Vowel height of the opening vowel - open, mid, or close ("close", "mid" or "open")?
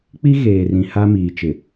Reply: close